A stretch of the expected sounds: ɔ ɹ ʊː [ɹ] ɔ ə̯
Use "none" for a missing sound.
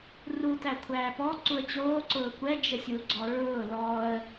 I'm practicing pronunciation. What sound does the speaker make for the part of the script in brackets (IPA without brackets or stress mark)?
l